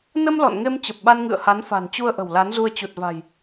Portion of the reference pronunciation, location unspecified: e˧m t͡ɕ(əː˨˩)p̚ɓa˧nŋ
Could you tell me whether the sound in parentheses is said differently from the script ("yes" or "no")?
yes